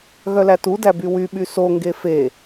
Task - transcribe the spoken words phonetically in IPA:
ɣ œ l æ t u d æ b y w y ɓ y s o ŋ ɡ e f e

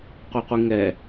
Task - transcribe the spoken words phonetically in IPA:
qʷ ɛ qʷ i ŋ ɛ

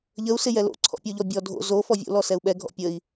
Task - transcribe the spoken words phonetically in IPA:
ʎ ə u̯ s ɪ j ɛ l o̰ ǀʰ ɔ̰ pʲ o ʎ ɔ bʲ ɔ dʱ o̰ z o f ɔ vʲ o̰ l ɔ s ɛ u̯ ɓ ɛ ɡʱ ɔ̰ pʲ ə i̯

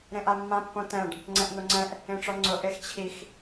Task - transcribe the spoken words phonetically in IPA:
ɾ ẽ ʔ a mː ã pː õ t ɛ̃ ɖ | ŋ͡ǀ ɛ̃ ʔ n̪ o ŋ͡ǀ ɛ̃ ʔ | ẽ ʈ͡ʂ ɔ ŋ͡ǀ ʊ ʔ e x t͡ɕʰ i x

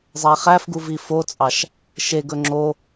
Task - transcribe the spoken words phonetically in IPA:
zˤ æ χ æ f ɡ u v i f o t͡sʼ ɑ ʃ | ʃ e ɡ ɵ ŋ͡ǁ o

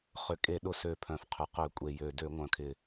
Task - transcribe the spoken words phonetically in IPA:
χ ʏ˨˩ kʼ e˧˩˧ ɗ ʊ˧˩˧ s ø˨˩ pʰ œ̃˨˩ f qʰ ʏ˨˩ q ø˧˩˧ kʷʼ e˨˩ j ø˨˩ d ø˧˩˧ ŋʷ œ̃˨˩ kʰ ɪ˨˩

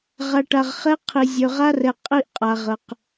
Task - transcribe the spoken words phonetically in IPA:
ʁ a˨ ʈ a˨ ʁ χ ɛ˦ qʰ i˨ zʲ ø˨ ʁ a˦ r ɛ˨ qʼ i˦ ʔ qʼ a˨ ʁ ə˨ q

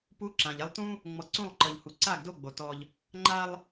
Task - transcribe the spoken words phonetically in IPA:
p u˨˦ ǁ ã˨ ʎ ɛ˦ lˠ t ũ˦ | ŋ͡m ɔ˨ ǀ ũ˦˨ lˠ ǃ ɤ˨ ʎ h u˨ ǀ a˦˨ ɡ d o˦˨ ɡ͡b o˨ t ɔ˦ ʎ | ŋ͡ǃ a˦ lˠ

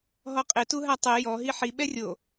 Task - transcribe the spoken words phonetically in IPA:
ɦ ɔ qʼ ɪ t u ɦ a tˤ ɛ j ɔ ɦ i ħ i ɓ ɛ rʲ o

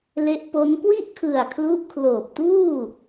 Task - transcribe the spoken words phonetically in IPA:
l e˦˥ ʔ p o˦˥ n k w i˥˩ ʔ kʰ ɯ˨˩ a̯ kʰ l u˦˥ ʔ kʰ l oː˨˩ p̚ t uː˥˩

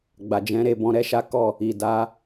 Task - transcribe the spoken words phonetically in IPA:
ɡ͡b a˨ d͡ʒ ɛ̃˨˦ ɾ e˦˨ b ɔ̃˨˦ ɾ ɛ˦ ʃ a˦ k ɔ˦˨ | i˨ d a˨˦

